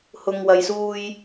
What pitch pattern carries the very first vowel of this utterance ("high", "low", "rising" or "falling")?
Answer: low